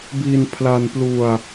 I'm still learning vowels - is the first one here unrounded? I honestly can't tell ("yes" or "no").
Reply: yes